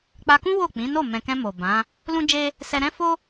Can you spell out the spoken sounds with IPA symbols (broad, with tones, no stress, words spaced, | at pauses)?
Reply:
k͡pa˧kũ˦ wo˦˨k͡pĩ˨˦no˦˨ mɛ̃˨kɛ̃˧ mo˨bã˨˦ | lũ˦d͡ʒe˦ | sɛ˧ɾɛ̃˦fo˦